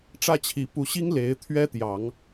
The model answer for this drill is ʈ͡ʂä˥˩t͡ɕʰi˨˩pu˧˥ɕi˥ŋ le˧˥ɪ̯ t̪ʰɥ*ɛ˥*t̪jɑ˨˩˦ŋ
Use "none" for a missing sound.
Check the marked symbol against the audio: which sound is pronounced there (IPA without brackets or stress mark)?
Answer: ɛ˥